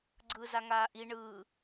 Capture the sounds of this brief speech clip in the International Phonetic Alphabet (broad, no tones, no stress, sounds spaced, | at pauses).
ɡ͡ǀ ɯː z a ŋ aː ʔ i ɳ ɯː